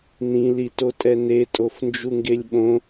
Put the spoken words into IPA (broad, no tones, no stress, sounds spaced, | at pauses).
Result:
n ĩ l i t o tʼ ɛ n e tʼ o f n d͡ʒ u ŋ ɡ e lʲ ɓ õ